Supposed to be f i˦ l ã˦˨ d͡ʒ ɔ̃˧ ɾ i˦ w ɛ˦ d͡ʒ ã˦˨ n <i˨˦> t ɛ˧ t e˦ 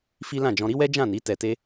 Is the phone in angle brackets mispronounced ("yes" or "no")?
no